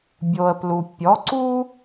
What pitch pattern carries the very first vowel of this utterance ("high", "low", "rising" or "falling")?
low